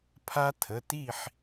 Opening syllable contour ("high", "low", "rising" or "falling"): high